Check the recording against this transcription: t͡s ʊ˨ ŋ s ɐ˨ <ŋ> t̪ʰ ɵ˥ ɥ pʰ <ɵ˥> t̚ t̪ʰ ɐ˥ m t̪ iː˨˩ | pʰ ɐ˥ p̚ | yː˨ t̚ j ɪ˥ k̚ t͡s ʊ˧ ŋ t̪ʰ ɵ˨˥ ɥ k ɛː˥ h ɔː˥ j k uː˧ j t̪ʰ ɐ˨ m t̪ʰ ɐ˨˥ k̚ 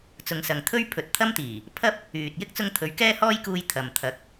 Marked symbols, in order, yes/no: yes, no

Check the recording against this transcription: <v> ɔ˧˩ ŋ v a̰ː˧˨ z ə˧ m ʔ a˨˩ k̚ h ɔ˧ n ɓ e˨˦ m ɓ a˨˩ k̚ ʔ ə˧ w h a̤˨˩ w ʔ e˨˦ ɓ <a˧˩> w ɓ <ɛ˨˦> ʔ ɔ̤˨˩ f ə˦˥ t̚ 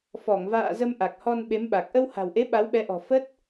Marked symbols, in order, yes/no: no, no, yes

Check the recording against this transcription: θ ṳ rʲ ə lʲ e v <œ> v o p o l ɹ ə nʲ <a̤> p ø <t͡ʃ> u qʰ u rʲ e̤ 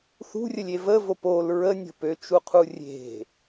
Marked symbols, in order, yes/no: no, no, yes

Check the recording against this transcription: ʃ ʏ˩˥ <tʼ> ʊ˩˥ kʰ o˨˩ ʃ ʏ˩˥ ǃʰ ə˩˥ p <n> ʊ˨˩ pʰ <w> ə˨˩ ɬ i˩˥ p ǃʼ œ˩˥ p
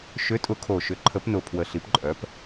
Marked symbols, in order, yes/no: yes, yes, yes

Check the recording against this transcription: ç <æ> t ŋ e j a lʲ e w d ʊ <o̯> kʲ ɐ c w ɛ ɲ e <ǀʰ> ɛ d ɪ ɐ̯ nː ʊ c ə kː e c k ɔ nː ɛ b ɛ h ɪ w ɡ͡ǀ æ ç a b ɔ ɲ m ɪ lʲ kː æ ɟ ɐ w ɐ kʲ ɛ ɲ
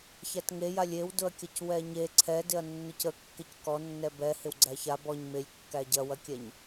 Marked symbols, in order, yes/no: yes, no, yes

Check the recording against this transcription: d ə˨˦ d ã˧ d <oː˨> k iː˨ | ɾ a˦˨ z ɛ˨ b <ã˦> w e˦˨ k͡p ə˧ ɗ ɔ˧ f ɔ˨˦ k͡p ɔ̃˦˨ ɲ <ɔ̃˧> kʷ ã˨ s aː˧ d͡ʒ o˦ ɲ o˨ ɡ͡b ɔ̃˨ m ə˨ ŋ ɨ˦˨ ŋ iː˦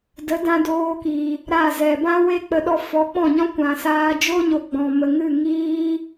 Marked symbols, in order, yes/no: no, yes, no

